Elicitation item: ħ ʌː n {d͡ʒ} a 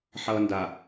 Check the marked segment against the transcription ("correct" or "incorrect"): incorrect